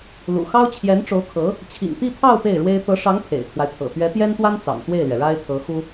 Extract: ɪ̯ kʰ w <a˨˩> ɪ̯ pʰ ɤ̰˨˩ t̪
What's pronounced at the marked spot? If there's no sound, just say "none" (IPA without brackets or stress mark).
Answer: a˦